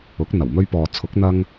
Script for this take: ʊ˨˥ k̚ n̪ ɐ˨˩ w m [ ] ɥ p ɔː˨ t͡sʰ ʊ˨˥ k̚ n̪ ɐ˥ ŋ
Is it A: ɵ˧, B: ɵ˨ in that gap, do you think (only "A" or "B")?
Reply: A